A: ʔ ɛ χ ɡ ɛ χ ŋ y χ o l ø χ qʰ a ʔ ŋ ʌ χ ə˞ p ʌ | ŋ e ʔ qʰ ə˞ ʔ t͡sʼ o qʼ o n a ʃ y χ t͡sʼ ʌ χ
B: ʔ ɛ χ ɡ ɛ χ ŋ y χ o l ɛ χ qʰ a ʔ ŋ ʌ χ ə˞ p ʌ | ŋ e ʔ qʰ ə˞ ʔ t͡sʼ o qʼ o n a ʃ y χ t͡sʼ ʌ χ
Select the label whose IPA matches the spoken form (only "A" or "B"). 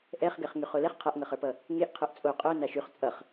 B